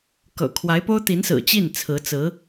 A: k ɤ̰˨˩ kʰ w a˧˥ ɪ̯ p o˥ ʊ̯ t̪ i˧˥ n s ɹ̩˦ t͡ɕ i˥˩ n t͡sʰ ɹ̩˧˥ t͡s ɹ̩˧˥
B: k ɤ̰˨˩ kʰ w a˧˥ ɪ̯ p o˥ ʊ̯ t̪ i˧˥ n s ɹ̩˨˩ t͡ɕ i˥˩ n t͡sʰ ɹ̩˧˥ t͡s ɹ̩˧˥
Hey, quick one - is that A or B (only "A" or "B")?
B